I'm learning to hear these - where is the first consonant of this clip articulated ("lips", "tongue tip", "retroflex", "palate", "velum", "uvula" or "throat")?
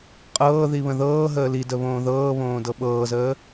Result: uvula